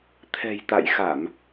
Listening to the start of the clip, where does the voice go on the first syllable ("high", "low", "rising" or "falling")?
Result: low